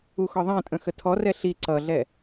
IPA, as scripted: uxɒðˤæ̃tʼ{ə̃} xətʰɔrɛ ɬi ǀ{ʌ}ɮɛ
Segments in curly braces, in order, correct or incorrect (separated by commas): correct, correct